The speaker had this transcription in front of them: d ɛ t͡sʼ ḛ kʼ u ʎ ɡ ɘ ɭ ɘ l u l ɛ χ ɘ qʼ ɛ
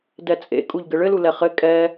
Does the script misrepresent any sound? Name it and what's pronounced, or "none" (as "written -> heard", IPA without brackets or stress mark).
qʼ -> kʼ